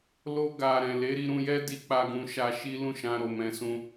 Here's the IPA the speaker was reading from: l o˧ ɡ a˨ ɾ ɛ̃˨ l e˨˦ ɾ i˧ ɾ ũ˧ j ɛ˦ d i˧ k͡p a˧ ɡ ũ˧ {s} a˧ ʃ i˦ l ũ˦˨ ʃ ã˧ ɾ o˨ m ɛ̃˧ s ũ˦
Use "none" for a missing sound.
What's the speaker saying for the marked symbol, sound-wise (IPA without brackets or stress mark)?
ʃ